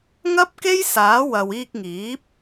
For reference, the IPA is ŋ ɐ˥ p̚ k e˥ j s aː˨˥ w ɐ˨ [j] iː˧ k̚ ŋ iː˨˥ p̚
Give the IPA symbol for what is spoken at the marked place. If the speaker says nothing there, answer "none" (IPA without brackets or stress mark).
w